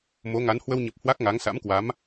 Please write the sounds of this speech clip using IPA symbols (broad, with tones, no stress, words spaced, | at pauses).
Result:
mo˨˦ŋa˨˦n hwə˧wɲə˨˩p̚ hwa˦˥k̚ŋa˨˦ŋsa̰˧˥mkwa˨˦m